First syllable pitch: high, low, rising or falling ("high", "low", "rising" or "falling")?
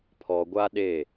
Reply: low